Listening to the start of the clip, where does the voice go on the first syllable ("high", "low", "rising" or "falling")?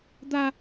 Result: high